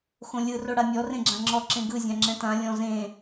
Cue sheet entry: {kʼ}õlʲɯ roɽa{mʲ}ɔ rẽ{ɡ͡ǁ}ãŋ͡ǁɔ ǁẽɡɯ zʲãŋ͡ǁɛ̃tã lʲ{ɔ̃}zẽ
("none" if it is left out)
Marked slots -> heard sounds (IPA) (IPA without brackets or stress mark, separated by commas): x, mʲ, ɡ͡ǁ, ɔ̃